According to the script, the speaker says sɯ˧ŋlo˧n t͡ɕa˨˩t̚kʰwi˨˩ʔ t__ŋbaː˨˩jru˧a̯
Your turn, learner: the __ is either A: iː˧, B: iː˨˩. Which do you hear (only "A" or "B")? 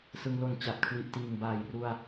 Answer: B